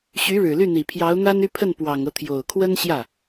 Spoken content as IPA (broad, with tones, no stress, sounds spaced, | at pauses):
ɕ y˧˥ ɻ ɻ̩˨˩ l y˥˩ n̪ i˨˩ pʰ j ɑ˧˥ ʊ̯ n̪ a˥ n y˥˧ pʰ ə˥˩ n p w ɑ˨˩ ŋ ɤ˦ t̪ʰ j o˨˩ ʊ̯ kʰ w ə˥ n ɕ j ä˥˩